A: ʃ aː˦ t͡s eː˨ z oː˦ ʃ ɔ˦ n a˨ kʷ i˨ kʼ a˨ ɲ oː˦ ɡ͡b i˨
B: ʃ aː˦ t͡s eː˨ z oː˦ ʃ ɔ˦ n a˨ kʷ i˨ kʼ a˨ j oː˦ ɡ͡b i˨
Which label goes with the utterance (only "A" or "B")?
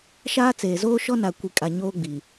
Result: A